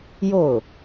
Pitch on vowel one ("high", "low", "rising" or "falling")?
falling